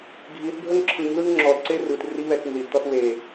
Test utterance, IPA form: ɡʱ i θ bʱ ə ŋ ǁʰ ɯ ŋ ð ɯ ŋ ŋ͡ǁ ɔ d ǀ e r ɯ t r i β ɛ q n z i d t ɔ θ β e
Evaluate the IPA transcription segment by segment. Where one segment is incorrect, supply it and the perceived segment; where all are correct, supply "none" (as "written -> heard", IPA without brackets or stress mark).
q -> t